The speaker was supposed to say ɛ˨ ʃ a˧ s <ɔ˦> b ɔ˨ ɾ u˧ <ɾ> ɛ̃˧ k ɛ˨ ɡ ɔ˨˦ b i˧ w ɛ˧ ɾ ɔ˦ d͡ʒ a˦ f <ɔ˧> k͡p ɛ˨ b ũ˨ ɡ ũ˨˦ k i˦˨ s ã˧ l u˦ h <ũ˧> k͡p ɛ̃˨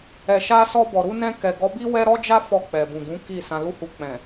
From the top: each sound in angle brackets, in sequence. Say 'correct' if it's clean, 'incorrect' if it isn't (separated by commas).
incorrect, incorrect, correct, incorrect